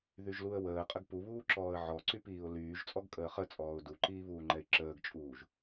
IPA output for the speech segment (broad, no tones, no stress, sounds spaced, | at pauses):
ð y ʒ l u ə̯ w əː qʼ ə ɡ p u β uː ǁ ɔː ə̯ ʕ ɔ ǀ y p iː ʊ̯ l yː ʒ t͡sʼ ɔ ɡ kʼ əː χ ə t͡sʼ ɔː ʊ̯ d u ǃ iː β uː ŋ͡ǃ ɛ ɪ̯ ǁ əː ɡ t͡ʃʼ uː ʒ